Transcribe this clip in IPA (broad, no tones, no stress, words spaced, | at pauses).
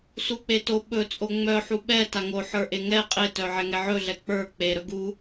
suk͡peto ɓɵt͡sʼo ŋ͡mœħu ɓɛta ŋoħə˞ ʔeŋɛ qʼetœ ʕɛŋɛʕɵɮɛ k͡pə˞ k͡pe ɾɵɡu